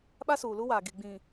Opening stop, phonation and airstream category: implosive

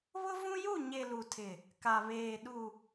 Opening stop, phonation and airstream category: aspirated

